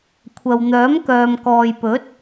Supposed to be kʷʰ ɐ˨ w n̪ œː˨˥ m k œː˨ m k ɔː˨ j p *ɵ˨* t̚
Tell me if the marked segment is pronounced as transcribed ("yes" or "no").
no